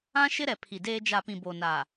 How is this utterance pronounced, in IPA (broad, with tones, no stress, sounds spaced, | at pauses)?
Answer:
ã˦ ʃ ɪ˦ ɾ ɛ˨ pʰ i˨ d eː˦ d͡ʒ a˨ p ĩ˨ b o˨ n aː˨